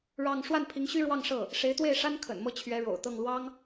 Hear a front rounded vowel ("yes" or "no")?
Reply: yes